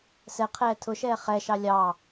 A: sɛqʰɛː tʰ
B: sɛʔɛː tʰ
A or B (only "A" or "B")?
A